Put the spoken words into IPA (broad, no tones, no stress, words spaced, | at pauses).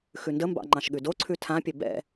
xʉndəmbɑ̰ ŋ͡ǃɑ̃ʃɠʉdoǀʰʉ tʰãpʲɘ bɛ̰